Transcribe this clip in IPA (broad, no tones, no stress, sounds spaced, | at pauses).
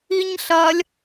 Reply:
i ɲ ɬ ɐ lʲ